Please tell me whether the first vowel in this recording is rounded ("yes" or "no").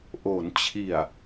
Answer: yes